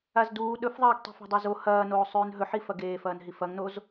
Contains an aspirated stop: no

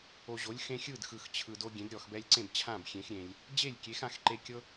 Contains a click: yes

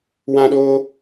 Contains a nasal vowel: yes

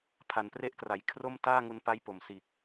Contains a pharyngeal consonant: no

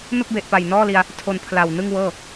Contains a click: no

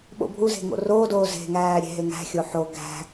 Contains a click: no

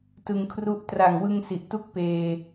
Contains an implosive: no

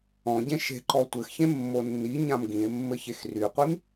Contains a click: yes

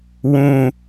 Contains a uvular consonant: no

